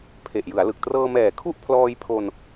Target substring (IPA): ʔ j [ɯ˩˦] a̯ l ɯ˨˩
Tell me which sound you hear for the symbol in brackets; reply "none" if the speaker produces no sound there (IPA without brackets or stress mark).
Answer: ɯ˩˦